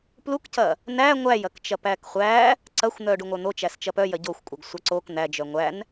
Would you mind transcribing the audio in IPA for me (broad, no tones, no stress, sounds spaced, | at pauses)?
p l u k c ɐ | n æ ŋʷ æ j ɐ k t͡ʃ ɐ p æ k χʷ æ | ǀ ɐ xʷ n̪ œ ɖ u ŋʷ œ n̪ o t͡ʃ æ s t͡ʃ ɐ p œ j ɐ ɟ o xʷ kʷʼ œ ɡ sʷ ɐ ǀ o k n̪ æ d͡ʒ œ ŋʷ æ n